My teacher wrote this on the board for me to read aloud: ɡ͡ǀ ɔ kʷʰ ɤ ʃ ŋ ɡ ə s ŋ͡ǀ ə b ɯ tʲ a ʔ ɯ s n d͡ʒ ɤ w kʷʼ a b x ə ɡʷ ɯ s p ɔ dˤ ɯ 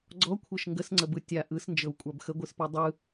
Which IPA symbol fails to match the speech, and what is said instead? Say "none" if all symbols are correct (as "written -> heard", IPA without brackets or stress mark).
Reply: none